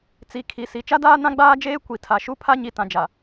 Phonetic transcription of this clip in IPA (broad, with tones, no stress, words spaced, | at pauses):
t͡si˨ kʰi˨si˨ t͡ʃa˦daː˦ nã˦ɡ͡baː˦d͡ʒeː˦ kʷi˨ tʰa˨ʃu˦ pʰa˦ɲi˨ tã˨d͡ʒa˨